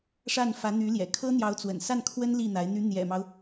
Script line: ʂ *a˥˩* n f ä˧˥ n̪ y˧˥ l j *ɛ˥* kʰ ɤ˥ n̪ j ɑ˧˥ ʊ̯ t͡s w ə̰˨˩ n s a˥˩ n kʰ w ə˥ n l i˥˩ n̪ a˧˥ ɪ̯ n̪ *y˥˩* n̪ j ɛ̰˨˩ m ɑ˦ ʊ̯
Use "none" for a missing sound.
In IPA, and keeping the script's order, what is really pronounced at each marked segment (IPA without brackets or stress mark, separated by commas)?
a˥˩, ɛ̰˨˩, y˧˥